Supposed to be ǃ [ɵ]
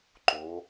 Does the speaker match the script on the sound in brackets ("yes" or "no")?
no